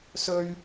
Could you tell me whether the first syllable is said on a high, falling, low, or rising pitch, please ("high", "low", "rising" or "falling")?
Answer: high